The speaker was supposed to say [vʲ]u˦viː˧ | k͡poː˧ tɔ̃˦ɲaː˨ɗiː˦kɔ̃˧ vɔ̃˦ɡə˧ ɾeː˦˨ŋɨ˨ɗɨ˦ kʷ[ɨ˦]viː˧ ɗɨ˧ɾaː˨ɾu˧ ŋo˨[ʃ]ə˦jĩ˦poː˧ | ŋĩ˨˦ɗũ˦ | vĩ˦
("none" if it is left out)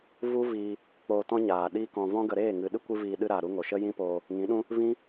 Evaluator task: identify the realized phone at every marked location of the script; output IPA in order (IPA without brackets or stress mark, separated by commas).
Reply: v, ɨ˦, ʃ